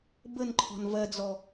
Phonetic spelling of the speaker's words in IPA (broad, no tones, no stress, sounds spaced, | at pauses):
b ə n ǃʰ ɔ̤ n v ɜ d͡z ɔ